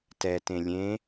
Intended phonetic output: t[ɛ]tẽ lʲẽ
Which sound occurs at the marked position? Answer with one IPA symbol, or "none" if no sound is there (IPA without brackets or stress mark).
ɛ